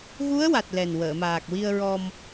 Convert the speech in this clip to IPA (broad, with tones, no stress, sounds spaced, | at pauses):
ɣ u˧˥ ə̯ w a˨˩ t̚ l ɛ˨˩ n w əː˨˩˨ m aː˨˩ k̚ w i˧ ə̯ ɹ ɔ˧ m